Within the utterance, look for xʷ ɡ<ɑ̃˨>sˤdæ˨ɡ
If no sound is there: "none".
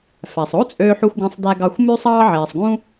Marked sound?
ɑ̃˨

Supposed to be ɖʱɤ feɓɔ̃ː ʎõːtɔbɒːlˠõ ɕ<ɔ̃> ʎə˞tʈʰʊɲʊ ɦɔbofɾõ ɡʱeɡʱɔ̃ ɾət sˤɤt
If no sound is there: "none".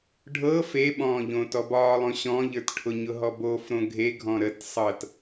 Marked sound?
ɔ̃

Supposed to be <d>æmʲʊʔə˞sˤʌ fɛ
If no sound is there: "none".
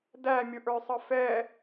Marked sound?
d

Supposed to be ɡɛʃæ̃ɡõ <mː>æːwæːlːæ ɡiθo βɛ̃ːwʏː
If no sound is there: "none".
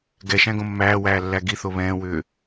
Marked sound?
mː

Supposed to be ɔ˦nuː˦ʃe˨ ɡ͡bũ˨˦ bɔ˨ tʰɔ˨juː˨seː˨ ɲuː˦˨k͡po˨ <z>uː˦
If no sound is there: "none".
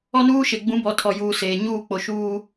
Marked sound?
ʃ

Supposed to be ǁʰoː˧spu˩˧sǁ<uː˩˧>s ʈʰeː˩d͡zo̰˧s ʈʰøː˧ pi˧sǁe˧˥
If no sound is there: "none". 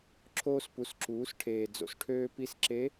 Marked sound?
uː˩˧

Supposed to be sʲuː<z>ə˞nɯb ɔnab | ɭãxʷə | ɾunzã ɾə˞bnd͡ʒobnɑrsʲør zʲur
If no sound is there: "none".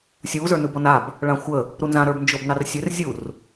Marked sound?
z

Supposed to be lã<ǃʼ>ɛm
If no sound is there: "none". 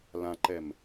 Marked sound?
ǃ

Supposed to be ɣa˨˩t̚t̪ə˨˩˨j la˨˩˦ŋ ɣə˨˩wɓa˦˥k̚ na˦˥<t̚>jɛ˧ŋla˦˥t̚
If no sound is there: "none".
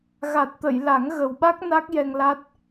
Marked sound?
k̚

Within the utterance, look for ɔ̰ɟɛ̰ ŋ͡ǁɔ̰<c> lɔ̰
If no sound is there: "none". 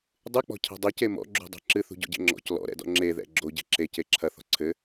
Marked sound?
c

